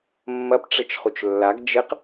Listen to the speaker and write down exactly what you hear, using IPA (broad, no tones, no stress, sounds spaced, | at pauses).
mː ɐ p ʈ͡ʂ ɘ t͡ʃ χ u t͡ʃ lː a ɡ d͡ʒ ɘ q